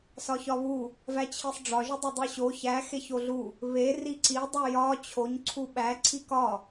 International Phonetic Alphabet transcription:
sɒçɒβu | væt͡ɕʰisˤɖ͡ʐɒ ʒudˤedˤiɕo çæ xeçoɮu | βe riǀi dˤujɒ t͡ɕʰoɲ ǀʰuɓæ ǀʰikɒ

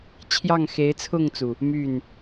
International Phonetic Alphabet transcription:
t͡ɕʰjɑ˥˩ŋxe˧˥ɪ̯t͡sʰʊ˥˩ŋt͡su˩ | my˥˩n

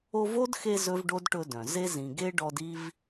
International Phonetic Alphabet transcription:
o˦vo˥dxe˦ zɵ˥vɖo˥dʈɵ˦dœ̃˩ ze˥ zĩ˨ɡe˥ɖɔ˦d i˦v

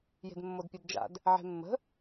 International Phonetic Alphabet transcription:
je̤dmːodpʲedd͡ʒa̰d | ʕe̤mːə̤

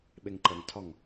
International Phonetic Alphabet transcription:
ɓeŋǃəŋtʰɒŋ

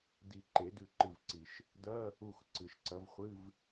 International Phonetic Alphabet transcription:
di˨˩˦ ǃe˨˩˦dʉ˧˩ǃɨ˧˩vǀi˩ʃ | dɐ˧˥˧ | u˧˩x ǀɨ˩ʃǀɐ˨˦vχʷɨ˧˥˧v

